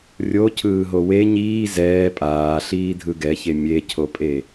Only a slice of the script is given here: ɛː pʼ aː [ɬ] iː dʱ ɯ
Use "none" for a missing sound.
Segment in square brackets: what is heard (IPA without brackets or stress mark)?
ɬ